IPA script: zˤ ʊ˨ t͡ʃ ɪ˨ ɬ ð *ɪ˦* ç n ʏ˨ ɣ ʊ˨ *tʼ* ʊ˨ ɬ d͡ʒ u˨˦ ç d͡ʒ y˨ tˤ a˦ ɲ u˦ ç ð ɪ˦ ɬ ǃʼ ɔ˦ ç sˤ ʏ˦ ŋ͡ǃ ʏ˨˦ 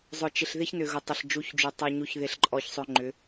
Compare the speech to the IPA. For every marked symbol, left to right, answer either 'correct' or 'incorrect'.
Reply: correct, incorrect: tˤ

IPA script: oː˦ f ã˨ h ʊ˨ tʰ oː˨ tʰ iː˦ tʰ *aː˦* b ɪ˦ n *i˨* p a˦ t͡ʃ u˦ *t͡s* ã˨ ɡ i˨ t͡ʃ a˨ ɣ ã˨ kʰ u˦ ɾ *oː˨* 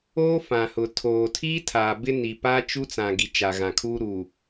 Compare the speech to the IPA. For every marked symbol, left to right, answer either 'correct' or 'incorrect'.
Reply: incorrect: aː˨, correct, correct, incorrect: uː˨

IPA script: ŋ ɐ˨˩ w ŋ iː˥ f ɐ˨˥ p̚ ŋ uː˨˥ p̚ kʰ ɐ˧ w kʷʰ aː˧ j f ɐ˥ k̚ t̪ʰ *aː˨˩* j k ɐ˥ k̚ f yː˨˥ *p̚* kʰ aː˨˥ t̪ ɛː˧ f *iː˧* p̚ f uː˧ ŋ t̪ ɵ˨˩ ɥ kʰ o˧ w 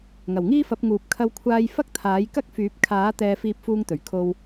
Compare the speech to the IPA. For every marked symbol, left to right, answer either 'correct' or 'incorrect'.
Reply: incorrect: aː˨˥, correct, correct

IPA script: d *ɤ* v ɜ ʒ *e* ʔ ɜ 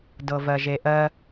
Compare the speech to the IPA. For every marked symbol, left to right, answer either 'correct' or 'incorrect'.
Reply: correct, correct

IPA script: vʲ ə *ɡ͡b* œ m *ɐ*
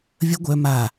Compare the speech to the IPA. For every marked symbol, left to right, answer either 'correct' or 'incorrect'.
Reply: incorrect: ɡʷ, incorrect: a

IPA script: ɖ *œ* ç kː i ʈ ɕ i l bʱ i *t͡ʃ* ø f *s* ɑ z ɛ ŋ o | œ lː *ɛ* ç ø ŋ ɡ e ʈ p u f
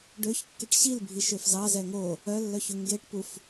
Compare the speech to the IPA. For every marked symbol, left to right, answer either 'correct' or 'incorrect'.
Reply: incorrect: ø, incorrect: ʃ, incorrect: z, incorrect: œ

